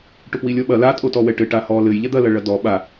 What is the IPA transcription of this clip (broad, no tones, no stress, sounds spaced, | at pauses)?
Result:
ʈ o p w i lʲ ɔ ɓ ɐ l a tʼ o t ɔ w ɛ ʈ ɘ ʈ a h ɔ l ɘ j ʎ ɛ d̪ ɐ l ɐ ɭ ɐ d ɔ ɓ a